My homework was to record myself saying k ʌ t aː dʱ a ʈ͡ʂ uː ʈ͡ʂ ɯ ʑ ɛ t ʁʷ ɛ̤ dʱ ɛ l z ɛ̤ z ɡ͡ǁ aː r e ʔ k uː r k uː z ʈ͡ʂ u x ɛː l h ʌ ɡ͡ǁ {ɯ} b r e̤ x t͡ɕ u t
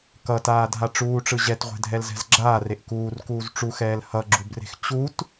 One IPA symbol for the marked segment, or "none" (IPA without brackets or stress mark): u